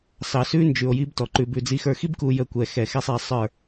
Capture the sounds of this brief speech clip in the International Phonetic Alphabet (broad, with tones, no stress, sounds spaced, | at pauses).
s ɑ˨ s ʉ˦ n d͡ʒ ʉ˨ o̯ j i˦ b t ɔ˨ ǃ ʉ˨ b ʉ˨ d͡z i˨ x ə˞˨ x i˦ b k u˨ j ə˦˨ kʷ ɛ˨ x ɛ˨ x ɛ˦ sˤ ɛ˨˦ sˤ ə˞˦˨